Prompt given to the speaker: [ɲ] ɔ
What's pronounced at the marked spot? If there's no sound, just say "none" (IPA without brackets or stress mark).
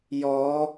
j